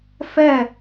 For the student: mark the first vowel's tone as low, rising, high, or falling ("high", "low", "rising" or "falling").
falling